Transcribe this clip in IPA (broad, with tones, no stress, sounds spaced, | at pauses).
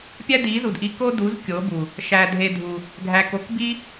pʲ æ˦ d i˨˦ z u˨ d ʔ i˧ k o˦ d u˨˦ z kʲ o˨˦ b u˨ | ʃ æ˧ dʱ e˧ dʱ u˨ | ɡʱ æ˧ k o˨˦ k b i˦